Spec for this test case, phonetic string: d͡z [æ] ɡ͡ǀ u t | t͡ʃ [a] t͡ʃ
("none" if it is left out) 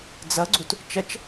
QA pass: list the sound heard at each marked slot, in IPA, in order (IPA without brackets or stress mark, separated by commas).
ɐ, ɐ